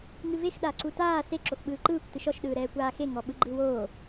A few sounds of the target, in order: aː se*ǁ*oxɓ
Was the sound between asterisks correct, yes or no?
yes